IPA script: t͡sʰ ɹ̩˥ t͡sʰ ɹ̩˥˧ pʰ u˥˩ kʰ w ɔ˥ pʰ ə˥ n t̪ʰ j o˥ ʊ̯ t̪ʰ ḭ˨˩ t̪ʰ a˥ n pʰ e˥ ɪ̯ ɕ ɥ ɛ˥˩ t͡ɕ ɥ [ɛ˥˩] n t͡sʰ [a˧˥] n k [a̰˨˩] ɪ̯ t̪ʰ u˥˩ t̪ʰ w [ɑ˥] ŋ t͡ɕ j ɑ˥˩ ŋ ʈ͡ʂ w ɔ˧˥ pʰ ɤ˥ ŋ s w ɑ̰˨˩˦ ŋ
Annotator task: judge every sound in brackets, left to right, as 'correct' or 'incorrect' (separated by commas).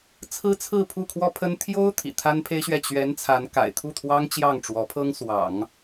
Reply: incorrect, correct, correct, correct